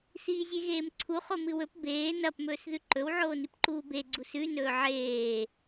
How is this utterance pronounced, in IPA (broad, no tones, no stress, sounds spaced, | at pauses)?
s iː zʲ e ɣ eː m ǀʰ u χ o m ɨ w ɵ p b eː n ɐ p m ɵː s ð ʉ ǃ ɵ w ʕ oː n i p ǃ uː b e ɡ͡ǀ u s ʉ n ɵː ʕ eː